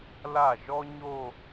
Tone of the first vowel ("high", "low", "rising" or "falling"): falling